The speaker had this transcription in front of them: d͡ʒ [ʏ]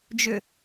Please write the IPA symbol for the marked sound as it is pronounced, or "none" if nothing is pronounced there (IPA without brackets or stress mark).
ʏ